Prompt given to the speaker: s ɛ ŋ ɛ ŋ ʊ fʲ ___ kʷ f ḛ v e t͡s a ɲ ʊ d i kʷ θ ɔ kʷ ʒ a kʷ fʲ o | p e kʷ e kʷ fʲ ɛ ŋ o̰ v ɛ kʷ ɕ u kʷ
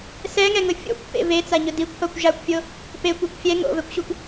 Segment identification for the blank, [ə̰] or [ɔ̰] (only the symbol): ɔ̰